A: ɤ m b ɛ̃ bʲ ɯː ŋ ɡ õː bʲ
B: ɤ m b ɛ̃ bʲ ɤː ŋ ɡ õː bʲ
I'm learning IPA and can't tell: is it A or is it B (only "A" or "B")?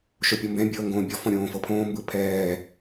B